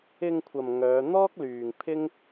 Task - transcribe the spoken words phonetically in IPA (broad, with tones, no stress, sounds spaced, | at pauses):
ɪ˧ ŋ kʷʰ ɐ˨ m ŋ œː˨˧ n̪ ɔː˥ k̚ l yː˨ ŋ pʰ ɪ˥ ŋ